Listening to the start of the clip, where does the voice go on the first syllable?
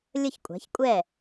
falling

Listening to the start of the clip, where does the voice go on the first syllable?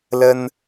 high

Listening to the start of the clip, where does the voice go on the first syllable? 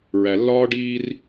low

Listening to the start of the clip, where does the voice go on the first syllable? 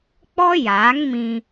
high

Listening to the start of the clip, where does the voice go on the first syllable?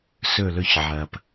falling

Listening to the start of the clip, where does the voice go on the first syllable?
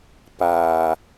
low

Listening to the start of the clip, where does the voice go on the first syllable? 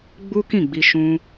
high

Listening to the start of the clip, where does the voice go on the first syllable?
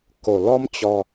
low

